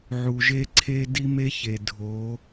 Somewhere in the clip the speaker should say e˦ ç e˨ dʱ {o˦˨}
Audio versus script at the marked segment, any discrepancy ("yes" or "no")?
yes